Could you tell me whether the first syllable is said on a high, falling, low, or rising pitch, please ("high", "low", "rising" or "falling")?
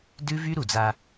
high